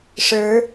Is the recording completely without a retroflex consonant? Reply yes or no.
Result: no